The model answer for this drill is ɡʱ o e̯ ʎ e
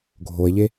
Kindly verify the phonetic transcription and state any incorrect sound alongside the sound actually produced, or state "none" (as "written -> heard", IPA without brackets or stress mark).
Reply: none